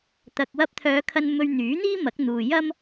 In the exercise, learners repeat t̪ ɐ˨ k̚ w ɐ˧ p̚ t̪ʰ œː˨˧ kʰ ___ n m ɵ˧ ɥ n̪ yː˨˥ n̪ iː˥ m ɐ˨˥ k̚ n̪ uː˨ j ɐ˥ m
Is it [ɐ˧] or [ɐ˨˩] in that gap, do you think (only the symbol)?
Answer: ɐ˧